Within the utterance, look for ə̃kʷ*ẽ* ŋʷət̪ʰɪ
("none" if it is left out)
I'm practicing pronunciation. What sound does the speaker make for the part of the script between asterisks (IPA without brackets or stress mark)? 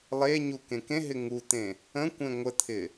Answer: ẽ